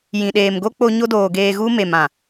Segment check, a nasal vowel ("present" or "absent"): present